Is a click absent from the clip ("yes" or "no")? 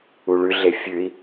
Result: yes